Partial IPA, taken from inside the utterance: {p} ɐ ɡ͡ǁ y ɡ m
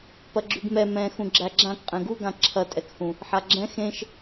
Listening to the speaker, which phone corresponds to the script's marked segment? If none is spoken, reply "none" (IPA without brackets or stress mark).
p